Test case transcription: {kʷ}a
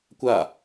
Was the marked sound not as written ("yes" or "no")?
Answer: no